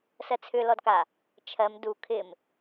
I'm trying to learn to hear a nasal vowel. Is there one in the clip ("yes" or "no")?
no